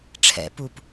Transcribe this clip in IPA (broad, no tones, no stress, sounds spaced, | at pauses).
ʈ͡ʂʰ ɛ̰ p u p